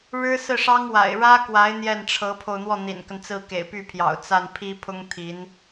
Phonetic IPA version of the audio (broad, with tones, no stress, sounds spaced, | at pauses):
ɻ ɻ̩˥ s ɹ̩˥˩ ʂ ɑ˥ ŋ w a̰˨˩ ɪ̯ ɻ ä˥ k w a˧˥ ɪ̯ n̪ j ɛ˥˩ n ʈ͡ʂʰ ɤ˧˥ pʰ o˧ ʊ̯ n̪ w ɔ˥˩ n̪ ḭ˨˩ n k ə˦ n t͡s ɹ̩˥˩ k ḛ˨˩ ɪ̯ p y˥˩ pʰ j ɑ̰˨˩ ʊ̯ t͡s a˥˩ n pʰ i˥ pʰ ʊ˥ ŋ t̪ʰ i˧˥ n